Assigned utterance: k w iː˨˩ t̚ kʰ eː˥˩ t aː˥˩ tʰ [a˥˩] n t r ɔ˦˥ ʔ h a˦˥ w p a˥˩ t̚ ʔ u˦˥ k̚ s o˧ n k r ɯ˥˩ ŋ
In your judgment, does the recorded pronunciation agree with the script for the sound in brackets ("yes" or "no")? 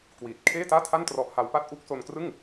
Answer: yes